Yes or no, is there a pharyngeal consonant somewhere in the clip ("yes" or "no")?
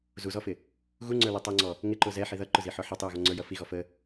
yes